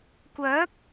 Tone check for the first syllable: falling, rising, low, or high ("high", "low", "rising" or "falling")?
rising